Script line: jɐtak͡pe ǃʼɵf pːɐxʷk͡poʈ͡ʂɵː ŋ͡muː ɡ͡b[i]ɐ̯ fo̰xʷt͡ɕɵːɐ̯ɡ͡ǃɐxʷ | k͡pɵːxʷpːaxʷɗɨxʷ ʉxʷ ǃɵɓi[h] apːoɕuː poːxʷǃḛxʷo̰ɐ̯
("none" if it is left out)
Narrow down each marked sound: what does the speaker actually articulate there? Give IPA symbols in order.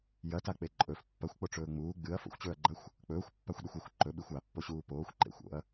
ɨ, xʷ

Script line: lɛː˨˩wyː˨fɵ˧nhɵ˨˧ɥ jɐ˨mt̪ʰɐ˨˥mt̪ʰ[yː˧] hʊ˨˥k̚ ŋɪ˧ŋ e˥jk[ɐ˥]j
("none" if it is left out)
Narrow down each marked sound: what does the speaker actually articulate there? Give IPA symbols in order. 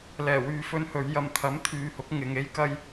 yː˨, ɐ˥

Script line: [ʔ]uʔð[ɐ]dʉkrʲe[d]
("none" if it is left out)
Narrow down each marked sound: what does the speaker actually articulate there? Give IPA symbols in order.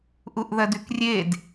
ʔ, ɐ, d

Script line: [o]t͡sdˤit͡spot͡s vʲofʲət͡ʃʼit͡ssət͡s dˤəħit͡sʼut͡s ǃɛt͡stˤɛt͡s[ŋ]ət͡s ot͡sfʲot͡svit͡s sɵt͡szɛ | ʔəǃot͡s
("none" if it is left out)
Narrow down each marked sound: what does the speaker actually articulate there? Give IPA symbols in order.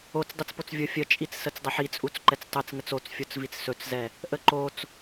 o, ŋ

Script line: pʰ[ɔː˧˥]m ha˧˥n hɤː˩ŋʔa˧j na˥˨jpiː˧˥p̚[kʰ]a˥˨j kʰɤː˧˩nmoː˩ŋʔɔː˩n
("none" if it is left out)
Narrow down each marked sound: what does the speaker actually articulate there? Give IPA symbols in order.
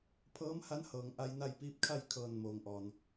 ɤː˧˥, kʰ

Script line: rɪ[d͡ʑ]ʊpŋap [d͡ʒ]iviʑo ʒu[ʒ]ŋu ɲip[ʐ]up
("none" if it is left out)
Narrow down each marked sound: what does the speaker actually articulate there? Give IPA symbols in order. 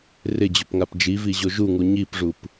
d͡ʑ, d͡ʒ, none, ʐ

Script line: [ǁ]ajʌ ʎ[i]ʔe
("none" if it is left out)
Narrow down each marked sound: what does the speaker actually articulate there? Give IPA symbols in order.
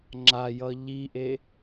ŋ͡ǁ, i

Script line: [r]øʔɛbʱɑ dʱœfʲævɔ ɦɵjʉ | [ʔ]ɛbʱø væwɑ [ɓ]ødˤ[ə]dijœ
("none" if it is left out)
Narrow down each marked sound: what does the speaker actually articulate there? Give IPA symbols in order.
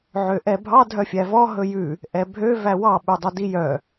ʕ, ʔ, ɓ, œ

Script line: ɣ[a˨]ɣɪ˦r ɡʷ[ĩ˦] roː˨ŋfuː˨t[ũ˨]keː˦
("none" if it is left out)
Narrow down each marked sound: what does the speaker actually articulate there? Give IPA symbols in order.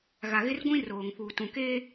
a˨, ĩ˦, ũ˨

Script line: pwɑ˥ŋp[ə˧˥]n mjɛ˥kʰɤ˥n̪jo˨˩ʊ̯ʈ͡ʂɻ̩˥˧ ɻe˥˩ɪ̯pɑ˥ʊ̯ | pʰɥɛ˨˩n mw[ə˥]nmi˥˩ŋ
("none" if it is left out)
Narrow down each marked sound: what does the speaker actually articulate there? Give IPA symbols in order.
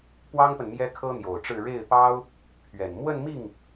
ə˨, ə˥˧

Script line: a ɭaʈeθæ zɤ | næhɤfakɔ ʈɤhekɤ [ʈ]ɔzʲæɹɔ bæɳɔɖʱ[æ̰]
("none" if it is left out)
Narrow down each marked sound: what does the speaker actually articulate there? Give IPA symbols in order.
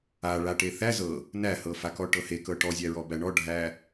ʈ, æ

